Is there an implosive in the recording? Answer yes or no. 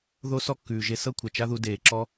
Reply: no